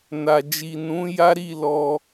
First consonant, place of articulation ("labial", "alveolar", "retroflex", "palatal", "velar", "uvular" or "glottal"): alveolar